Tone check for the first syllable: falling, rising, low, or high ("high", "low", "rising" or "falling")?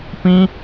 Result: high